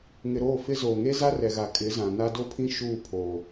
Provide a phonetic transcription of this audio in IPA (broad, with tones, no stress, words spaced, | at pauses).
ŋɪ˨ ɾoː˦˨fɪ˦zoː˨ ŋe˦za˦rɛ˨ɣa˨ kʼɪ˨˦zã˨na˦ do˦pʰĩ˦ ʃuː˦˨pʰo˨